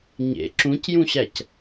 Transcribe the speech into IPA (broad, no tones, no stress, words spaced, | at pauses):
ɲḛ ǁũcjũɕæc